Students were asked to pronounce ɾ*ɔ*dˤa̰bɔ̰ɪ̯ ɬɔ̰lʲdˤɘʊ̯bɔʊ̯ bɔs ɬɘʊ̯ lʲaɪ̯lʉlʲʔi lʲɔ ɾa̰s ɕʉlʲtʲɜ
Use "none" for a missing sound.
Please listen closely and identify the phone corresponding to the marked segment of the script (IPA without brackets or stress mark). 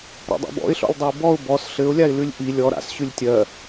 ɔ̰